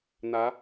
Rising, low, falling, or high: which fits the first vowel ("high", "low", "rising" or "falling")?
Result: rising